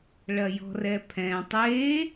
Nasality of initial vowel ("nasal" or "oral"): oral